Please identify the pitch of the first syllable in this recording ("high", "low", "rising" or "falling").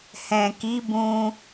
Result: low